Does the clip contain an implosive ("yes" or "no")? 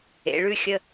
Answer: no